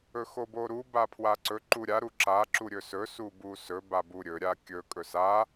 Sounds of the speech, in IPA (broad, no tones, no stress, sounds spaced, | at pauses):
ɵ x o b o ɾ u b a pʰ w a ǀ ɵ ǃ u ɾʲ a ɾ u ǁ a ǁ u ɾʲ ɵ s ɵ s u b u s ɵ b a b u ɾʲ ɵ ɾʲ a kʲ ɵ kʼ ɵ s a